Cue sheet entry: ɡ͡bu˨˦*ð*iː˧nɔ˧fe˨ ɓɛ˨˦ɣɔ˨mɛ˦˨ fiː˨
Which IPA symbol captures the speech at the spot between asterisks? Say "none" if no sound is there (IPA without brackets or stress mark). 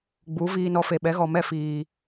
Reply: v